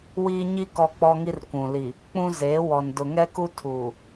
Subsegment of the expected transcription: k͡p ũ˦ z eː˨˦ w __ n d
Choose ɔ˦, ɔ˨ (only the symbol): ɔ˨